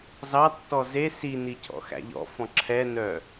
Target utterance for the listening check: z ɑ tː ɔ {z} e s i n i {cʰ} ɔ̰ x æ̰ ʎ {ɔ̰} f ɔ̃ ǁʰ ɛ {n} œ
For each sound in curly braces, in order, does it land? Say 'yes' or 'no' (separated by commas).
yes, yes, yes, yes